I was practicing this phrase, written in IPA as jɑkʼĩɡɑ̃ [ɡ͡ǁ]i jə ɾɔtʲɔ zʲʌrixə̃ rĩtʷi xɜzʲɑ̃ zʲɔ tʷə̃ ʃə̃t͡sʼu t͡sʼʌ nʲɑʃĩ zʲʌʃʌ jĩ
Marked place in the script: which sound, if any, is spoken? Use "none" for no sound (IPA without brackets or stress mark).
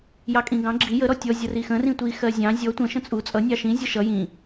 ɡ͡ǁ